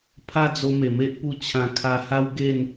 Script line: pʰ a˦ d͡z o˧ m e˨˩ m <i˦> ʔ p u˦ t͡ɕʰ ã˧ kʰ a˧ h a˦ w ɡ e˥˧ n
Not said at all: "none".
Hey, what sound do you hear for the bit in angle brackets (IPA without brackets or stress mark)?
e˦